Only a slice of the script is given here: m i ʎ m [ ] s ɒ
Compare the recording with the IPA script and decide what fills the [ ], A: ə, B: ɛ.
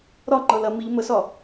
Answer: A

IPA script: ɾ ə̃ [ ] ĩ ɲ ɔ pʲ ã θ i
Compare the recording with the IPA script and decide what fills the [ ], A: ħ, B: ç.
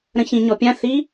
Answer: B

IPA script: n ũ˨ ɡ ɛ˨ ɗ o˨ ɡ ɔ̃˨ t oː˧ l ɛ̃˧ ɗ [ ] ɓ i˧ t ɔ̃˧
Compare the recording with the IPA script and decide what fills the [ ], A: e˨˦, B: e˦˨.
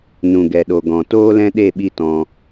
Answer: B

